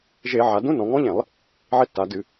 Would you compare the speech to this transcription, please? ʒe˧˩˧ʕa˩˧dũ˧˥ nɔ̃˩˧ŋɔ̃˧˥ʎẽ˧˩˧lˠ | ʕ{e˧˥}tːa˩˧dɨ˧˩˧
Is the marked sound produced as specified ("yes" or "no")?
yes